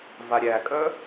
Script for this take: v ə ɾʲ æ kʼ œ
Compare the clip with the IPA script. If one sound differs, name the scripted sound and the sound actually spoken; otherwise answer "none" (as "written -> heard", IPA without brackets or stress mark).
ə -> a